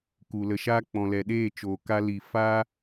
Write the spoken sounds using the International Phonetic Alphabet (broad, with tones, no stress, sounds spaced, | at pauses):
k u˨ l ə˨ ʃ aː˦ k͡p ɔ̃˨ l ɛ˨ ɗ eː˦˨ t͡ʃ oː˨ k a˧ l i˨ f aː˦